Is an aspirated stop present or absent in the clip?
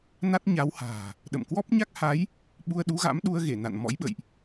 absent